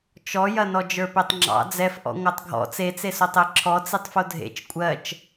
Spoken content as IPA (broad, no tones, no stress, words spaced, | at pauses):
t͡ʃɔjɐnɔ d͡ʒə˞petˤŋ͡ǁɑ̰ d͡zɛfʔɔ̰ ŋʷɜtˤɡʱɔ̰ t͡set͡sesotˤ eǁʰɔ t͡sitˤfodʱḛt͡ʃ kʷʼɜt͡ʃ